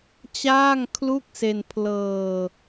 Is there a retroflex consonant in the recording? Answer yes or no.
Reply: no